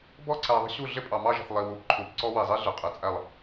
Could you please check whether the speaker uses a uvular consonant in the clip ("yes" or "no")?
yes